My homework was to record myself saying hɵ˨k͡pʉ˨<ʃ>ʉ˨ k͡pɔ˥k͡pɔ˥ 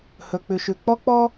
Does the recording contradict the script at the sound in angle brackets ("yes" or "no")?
no